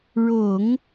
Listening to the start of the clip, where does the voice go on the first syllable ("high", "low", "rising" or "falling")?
low